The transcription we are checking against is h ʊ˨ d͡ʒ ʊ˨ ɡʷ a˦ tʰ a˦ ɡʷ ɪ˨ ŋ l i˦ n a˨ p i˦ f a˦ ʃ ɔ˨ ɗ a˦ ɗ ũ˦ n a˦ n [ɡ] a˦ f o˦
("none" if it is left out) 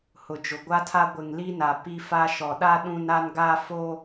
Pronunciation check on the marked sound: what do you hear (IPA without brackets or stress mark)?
ɡ